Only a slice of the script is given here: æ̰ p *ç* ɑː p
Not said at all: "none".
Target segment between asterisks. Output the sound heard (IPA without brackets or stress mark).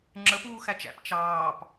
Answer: t͡ʃ